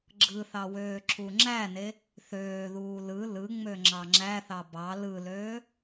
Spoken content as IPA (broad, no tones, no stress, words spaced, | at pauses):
ɡ͡ǁɯθɑ wøːǁuŋ͡ǁæne | θøːðuː lɯ lɯŋ͡mø ŋ͡ǁɑŋ͡ǁæθɑ bɑ lɯløː